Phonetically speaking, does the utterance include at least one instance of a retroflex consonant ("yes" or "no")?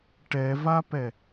yes